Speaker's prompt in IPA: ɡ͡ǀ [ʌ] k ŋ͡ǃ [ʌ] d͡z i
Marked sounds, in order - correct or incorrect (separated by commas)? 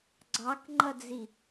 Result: incorrect, correct